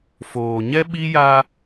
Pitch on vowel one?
low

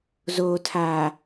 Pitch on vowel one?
low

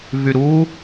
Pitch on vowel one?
low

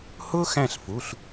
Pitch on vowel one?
high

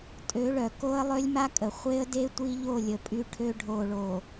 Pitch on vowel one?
rising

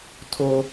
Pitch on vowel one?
high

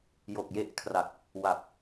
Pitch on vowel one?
low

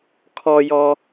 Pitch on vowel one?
low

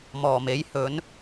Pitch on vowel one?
low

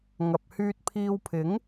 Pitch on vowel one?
low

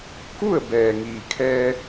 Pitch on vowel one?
falling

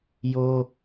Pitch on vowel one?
high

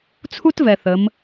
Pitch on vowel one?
high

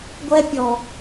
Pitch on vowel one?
high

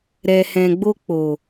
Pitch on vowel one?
low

